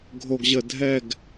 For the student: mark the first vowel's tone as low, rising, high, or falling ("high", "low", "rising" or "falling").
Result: low